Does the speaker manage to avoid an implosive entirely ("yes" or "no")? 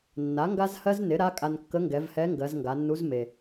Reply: yes